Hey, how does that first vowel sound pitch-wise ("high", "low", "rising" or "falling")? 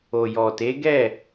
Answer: low